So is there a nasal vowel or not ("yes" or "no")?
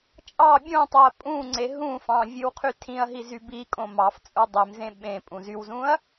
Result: yes